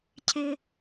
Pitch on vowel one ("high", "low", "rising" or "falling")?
high